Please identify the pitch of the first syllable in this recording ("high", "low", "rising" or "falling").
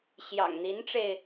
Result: low